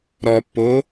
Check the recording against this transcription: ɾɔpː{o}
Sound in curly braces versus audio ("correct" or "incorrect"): correct